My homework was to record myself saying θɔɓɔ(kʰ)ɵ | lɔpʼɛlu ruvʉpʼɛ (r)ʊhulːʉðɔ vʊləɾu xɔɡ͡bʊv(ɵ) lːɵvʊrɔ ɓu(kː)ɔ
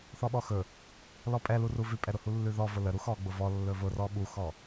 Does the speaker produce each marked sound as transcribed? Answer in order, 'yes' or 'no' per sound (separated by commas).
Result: no, no, no, no